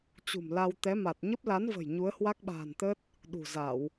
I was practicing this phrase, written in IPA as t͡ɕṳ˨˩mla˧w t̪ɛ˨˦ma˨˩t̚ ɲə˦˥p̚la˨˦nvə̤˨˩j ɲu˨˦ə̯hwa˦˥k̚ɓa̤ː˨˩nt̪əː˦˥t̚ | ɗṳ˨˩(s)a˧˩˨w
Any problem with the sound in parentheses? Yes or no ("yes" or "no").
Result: yes